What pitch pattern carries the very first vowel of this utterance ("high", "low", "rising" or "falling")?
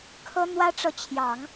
high